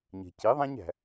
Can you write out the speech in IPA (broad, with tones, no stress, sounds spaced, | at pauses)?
ɲ e̤˩ c i˩˥ ðˤ æ̃˥ ɲ æ̤˩